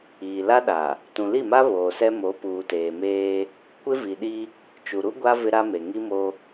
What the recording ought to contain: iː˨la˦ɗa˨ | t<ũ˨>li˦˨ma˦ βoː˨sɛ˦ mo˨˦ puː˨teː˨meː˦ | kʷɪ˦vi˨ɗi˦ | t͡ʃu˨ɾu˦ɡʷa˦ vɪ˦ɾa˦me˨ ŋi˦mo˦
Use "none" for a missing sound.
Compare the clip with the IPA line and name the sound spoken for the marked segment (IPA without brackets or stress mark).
ũ˨